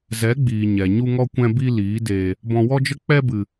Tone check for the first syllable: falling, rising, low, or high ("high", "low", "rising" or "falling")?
rising